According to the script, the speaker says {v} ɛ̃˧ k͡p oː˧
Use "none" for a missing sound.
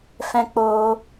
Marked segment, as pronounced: f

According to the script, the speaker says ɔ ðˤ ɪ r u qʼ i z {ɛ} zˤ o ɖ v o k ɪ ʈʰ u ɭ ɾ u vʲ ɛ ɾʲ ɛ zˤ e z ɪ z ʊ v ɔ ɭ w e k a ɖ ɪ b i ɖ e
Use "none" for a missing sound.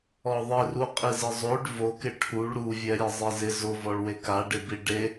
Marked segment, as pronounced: ɪ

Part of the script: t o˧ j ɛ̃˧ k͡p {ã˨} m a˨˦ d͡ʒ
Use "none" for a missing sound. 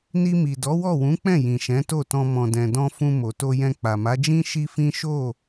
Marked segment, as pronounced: a˨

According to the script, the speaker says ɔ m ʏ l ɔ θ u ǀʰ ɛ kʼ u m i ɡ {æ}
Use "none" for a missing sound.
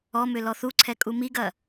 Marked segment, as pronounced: ɐ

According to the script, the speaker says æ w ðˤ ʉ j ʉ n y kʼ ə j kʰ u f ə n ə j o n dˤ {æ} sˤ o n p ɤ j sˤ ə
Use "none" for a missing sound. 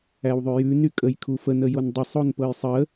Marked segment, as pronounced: ə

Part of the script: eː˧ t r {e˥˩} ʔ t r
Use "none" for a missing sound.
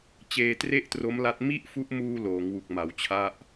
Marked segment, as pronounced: e˥˩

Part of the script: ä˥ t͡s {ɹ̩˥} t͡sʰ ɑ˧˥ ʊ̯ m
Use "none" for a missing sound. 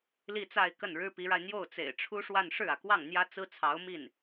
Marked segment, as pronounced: ɹ̩˥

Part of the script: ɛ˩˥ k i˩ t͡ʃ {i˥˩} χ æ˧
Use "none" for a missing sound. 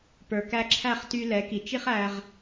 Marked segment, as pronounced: i˥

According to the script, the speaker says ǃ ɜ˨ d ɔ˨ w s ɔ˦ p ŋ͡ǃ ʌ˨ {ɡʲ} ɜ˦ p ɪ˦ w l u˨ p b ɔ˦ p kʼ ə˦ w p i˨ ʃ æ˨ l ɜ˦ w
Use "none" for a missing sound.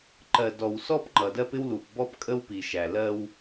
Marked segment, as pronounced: d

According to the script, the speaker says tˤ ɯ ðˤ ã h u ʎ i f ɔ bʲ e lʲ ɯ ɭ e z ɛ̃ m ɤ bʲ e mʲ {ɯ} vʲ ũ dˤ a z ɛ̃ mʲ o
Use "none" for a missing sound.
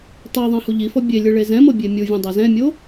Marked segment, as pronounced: u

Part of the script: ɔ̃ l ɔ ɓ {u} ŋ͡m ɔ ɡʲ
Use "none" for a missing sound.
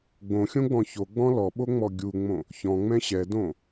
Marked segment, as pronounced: o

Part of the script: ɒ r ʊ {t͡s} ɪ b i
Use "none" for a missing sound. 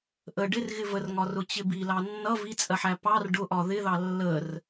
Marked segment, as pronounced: t͡ɕ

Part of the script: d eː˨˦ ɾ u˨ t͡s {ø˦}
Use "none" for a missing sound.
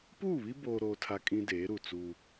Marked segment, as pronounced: u˦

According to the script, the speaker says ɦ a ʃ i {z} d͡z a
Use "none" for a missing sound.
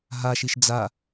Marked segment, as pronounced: ʃ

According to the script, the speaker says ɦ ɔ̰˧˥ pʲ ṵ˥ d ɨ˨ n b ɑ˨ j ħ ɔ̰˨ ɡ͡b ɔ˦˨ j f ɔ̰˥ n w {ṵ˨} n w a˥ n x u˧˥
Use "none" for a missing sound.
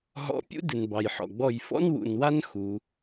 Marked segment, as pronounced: ṵ˨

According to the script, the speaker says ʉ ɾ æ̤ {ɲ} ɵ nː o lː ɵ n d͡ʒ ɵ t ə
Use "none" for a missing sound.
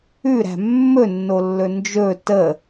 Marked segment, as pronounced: mː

